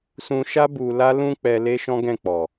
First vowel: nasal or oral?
nasal